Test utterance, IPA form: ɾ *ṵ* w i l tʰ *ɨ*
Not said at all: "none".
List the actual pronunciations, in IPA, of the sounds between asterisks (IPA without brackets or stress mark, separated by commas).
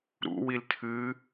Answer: ṵ, ɨ